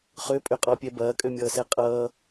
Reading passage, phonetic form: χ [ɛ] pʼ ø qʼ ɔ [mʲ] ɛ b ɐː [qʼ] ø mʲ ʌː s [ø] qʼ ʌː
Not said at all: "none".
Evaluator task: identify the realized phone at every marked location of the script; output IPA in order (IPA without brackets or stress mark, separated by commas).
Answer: ø, pʲ, kʼ, ɛ